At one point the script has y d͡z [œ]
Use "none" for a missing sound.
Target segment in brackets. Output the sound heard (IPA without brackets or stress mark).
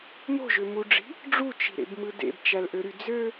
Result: ø